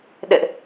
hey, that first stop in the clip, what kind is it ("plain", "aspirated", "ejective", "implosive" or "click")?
implosive